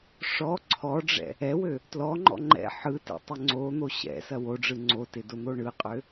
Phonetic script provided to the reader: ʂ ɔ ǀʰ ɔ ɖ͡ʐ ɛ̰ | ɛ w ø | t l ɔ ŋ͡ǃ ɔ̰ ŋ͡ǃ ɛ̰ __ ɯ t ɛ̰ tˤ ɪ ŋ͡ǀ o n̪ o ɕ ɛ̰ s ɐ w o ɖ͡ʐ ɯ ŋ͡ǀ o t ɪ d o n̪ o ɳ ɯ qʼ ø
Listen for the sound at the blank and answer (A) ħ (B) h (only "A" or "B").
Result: A